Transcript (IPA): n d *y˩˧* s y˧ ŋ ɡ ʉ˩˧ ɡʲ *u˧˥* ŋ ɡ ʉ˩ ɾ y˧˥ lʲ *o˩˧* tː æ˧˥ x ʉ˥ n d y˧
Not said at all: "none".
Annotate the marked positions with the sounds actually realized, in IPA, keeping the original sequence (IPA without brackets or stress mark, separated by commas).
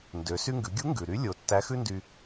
ø˩˧, u˧˥, o˩˧